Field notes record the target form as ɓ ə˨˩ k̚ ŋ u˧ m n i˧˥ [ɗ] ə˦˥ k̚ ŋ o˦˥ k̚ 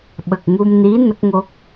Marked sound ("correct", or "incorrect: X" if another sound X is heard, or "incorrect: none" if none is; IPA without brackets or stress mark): incorrect: n